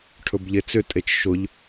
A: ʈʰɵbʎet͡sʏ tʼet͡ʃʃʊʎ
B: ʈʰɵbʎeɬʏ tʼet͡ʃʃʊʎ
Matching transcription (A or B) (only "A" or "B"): A